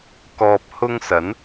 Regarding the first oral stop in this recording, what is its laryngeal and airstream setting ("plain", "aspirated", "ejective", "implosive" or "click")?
plain